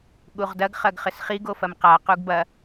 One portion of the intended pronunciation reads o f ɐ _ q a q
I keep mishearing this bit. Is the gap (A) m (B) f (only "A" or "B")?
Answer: A